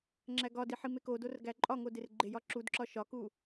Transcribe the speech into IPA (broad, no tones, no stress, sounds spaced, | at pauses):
ŋ͡ǁ æ ɡ ɒ d i ħ i m e k o d o r ɡ æ ǃʼ ɒ ŋ o d e r ɡ͡ǃ e j ɒ ǁ u d ǁ ɒ ʃ ɒ k u